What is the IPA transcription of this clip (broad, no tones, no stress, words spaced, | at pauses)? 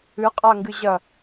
ɨ qʼaŋɡɨʑɐ